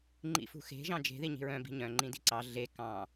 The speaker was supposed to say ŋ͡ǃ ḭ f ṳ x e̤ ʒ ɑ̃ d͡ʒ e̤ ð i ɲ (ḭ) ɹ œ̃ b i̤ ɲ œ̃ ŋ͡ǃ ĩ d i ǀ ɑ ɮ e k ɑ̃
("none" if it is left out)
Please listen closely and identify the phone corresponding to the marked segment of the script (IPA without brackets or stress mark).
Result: i̤